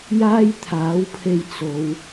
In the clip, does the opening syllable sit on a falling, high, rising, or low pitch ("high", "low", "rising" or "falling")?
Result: high